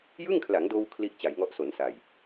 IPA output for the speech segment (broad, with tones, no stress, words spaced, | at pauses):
jɯ˥˩ŋkʰla˩˦ŋdoː˧w kʰli˥˩ʔ t͡ɕa˩˦jŋɔ˦˥ʔso˩˦nsa˨˩j